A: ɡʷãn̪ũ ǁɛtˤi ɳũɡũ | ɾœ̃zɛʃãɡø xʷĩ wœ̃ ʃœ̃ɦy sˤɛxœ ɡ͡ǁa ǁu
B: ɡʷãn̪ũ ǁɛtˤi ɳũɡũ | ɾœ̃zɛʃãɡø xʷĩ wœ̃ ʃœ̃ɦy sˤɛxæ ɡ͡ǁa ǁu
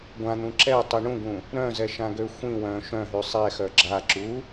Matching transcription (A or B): A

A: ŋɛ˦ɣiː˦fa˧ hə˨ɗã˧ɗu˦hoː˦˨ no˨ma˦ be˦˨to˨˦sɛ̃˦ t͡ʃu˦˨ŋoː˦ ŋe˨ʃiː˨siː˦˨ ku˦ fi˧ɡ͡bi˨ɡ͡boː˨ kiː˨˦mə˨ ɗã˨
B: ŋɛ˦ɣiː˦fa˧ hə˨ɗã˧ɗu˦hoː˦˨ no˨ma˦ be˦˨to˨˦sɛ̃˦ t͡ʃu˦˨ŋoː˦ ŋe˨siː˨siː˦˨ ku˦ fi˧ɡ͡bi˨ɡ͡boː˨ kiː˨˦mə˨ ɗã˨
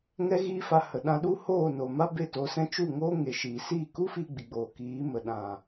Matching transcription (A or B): A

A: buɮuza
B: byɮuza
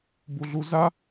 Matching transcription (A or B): A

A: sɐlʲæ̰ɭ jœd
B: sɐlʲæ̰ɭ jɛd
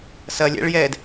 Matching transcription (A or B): B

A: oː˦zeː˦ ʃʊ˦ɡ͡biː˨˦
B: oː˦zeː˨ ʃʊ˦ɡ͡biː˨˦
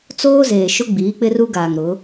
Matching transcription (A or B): B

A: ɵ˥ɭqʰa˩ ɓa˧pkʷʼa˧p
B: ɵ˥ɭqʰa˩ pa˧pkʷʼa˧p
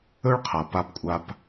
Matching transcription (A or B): B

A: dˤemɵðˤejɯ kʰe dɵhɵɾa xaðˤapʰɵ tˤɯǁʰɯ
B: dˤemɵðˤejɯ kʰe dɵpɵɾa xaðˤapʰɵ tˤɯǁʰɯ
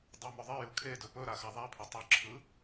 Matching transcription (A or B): B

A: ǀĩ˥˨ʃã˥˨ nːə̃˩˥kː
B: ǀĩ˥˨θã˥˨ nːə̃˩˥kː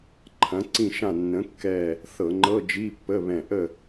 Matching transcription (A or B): A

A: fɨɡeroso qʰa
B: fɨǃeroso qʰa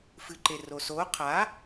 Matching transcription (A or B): B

